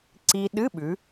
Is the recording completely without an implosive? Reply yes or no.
no